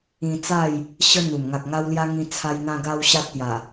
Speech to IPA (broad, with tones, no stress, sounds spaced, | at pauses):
ĩ˧ t͡s a˥˧ j | ɕ ə˦ n̪ u˨˩ m ŋ a˨ k̚ ŋ a˧ w l j a˧ ŋ ĩ˧ t͡sʰ a˧ j n̪ ã˧ ɡ a˧ w ɕ a˦ t̚ t̪ j a˨˩